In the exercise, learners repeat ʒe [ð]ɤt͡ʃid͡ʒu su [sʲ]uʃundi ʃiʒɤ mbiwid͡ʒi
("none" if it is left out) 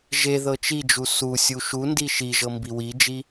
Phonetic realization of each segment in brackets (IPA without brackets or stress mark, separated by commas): ð, sʲ